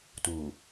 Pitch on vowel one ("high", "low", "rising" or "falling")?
low